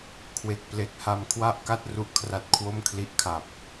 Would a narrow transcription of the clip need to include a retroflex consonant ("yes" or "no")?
no